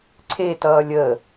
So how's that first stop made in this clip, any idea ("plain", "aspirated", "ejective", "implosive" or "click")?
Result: click